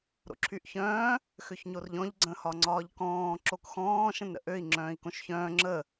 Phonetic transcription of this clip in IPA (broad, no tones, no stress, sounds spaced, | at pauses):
ɾ o̰ ǁʰ y ʔ ç œ̃ː | x ø ç ɲ o r ʎ ɔ̃ ʎ ɡ͡ǀ ə̃ h ɒ ŋ͡ǀ ɒː ʎ k ɔ̃ː ǁ o k x ɔ̃ː ʃ ə̃ n ɾ ə̰ ʔ ø i̯ ŋ͡ǁ œ̃ː i̯ k õ ʃ ç œ̃ː ŋ͡ǁ ə